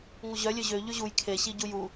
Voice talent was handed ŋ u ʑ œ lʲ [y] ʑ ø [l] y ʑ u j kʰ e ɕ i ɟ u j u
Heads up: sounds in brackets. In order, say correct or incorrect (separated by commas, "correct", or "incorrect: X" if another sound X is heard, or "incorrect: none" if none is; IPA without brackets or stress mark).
incorrect: ø, incorrect: ʎ